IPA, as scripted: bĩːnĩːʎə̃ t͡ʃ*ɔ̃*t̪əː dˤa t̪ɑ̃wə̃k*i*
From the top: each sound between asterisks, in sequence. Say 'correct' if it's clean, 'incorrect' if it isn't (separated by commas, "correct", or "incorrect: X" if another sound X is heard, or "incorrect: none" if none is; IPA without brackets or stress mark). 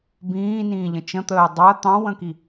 incorrect: ə̃, correct